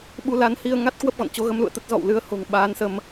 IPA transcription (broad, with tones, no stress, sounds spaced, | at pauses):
ɓ u˧ l a˨˦ n h i˧ ə̯ ŋ a˦˥ t̚ k w ə˦˥ p̚ ɣ ɔ̰˧˨ n t͡ɕ o˨˦ ɣ ə˨˦ m l ṵ˧˨ ə̯ t̪ ə˦˥ t̚ z ɔ̰˧˨ w l ɨ˨˦ ə̯ h o̤˨˩ ŋ ɓ aː˨˦ n s ə˧ m